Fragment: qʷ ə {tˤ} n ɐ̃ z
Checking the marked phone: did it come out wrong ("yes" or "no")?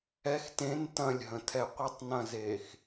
no